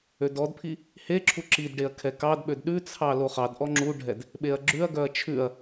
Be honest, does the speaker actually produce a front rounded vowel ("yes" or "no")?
yes